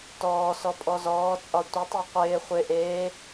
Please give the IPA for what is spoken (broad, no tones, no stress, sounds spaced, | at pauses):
t ɔː s ɔ pʼ ɔ z ɔː t͡sʼ ɒ tʷ ɪ tˤ i qʷ ɪː χʷ ɪ ʔ eː